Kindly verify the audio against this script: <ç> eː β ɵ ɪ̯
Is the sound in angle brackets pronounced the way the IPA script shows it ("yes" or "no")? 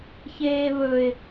yes